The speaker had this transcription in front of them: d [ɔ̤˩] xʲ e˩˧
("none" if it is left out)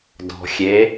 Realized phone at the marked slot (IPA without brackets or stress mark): ɔ̤˩